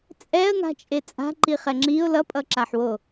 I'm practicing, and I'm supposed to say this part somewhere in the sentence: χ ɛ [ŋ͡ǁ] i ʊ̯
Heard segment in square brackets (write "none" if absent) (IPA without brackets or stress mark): ŋ͡ǁ